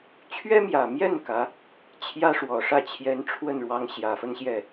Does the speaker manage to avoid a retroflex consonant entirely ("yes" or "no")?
no